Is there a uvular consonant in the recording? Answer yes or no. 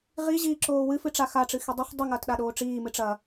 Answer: yes